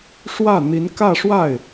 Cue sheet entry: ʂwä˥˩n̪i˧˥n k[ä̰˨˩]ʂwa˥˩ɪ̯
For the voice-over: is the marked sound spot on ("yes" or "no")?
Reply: no